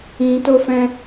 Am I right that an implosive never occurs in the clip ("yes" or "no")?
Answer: yes